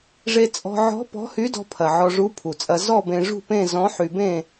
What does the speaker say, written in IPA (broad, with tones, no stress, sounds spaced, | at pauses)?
ʐ e˧ t͡sʼ ɔ̤˧ ʕ ɔ̤˧˥ p ɔ̤˧˥ h y˧˥ d ɔ̤˧ pʰ ɐ˨˩ ʕ ɔ˧ ʐ u˧˥ pʰ u˨˩ t͡sʼ ɐ˧ z ɔ˥˧ b ẽ˧ ʐ ṳ˥˧ p ẽ˥˧ z ɔ̃˧˥ ħ y˧ b ẽ˥˧